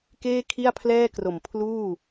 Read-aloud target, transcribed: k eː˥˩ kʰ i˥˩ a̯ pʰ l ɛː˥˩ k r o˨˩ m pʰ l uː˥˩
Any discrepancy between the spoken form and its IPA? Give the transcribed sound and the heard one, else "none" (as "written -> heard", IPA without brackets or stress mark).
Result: none